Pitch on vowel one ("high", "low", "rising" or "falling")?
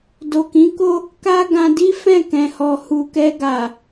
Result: low